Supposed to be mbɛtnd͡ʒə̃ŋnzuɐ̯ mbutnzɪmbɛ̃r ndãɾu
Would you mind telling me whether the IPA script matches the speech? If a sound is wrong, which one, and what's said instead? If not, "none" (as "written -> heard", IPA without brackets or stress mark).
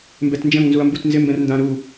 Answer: none